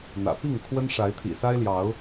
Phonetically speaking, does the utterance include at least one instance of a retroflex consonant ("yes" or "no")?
yes